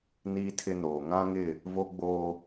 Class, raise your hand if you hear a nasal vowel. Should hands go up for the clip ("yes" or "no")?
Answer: yes